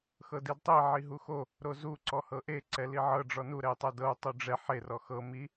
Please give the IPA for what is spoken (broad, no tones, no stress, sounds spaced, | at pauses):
x ɤ d i d tˤ i ʕ i ɦ u x o | ɾ o z u ǀ ɔ h ɤ ʔ e ǀ ɛ l i ʕ ɤ ɖ͡ʐ ɔ n u ɾ ɛ i̯ tˤ ɜ d ɤ u̯ tˤ u ɖ͡ʐ ɛ ħ e r ɔ x ɤ m i